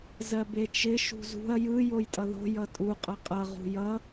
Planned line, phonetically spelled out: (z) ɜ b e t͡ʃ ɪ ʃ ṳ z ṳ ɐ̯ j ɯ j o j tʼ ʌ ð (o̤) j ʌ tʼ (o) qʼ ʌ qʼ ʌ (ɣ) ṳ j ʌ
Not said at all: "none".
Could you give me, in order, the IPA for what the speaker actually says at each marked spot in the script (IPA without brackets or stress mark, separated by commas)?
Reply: z, o̤, u, ʁ